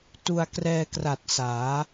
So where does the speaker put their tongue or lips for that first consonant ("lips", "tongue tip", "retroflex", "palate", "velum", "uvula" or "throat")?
tongue tip